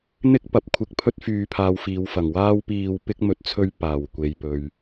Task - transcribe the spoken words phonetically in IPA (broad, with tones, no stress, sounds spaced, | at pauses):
n̪ ɪ˥ k̚ p ɐ˨˥ p̚ kʷʰ ɪ˨˥ k̚ pʰ ɵ˥ t̚ f yː˧ pʰ aː˧ w f iː˨˧ w f ɐ˨˩ ŋ w aː˥ w p iː˧ w p ɪ˥ k̚ m ɵ˨ t̚ t͡sʰ ɵ˧ ɥ p aː˨˩ w kʷ e˨ j p ɵ˨ ɥ